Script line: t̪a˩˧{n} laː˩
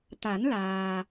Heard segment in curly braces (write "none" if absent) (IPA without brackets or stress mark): n